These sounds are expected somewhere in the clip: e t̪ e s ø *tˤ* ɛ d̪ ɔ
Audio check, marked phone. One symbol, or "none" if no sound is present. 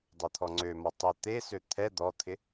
t̪ʰ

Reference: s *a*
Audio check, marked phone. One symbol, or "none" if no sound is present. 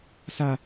a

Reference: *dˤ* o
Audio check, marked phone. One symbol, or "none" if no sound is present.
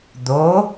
d̪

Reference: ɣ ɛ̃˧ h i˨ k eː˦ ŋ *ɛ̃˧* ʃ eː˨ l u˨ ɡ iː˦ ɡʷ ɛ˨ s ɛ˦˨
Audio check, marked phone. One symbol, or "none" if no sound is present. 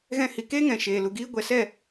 ɛ̃˨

